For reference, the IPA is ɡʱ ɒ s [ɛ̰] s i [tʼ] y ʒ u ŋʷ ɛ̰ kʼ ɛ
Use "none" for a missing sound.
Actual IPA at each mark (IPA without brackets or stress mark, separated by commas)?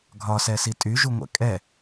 ɛ, tʼ